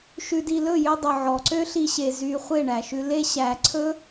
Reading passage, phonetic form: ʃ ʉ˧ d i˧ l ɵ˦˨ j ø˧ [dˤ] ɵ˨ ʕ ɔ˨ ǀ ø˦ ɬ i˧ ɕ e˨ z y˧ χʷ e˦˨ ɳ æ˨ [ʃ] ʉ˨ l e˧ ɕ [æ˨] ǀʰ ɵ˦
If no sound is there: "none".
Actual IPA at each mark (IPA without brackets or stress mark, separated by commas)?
dˤ, ʃ, æ˨